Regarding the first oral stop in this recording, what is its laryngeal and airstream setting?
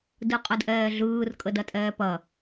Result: plain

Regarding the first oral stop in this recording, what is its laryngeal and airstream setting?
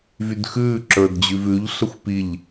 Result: plain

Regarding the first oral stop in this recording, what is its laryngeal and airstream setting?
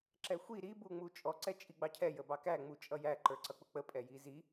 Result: click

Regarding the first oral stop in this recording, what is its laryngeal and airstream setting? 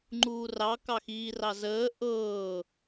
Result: click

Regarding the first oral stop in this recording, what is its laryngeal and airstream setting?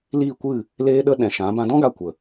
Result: plain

